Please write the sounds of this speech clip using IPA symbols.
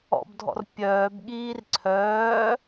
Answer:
ɔ̰bdʱɔ̰r pʲœːbɠiːr ǀʰœː

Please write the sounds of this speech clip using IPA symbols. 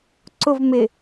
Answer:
ǀʊv mɪ

